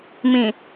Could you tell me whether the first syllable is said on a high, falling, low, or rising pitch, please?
low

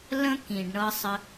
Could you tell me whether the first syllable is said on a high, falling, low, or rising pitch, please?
high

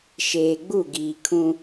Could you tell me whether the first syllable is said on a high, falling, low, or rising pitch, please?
low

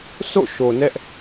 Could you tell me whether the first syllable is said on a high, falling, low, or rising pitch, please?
falling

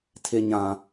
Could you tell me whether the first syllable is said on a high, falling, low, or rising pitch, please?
low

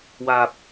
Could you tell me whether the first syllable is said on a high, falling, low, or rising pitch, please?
low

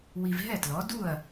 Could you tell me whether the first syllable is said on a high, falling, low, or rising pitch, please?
low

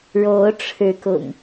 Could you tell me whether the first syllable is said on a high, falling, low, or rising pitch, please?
rising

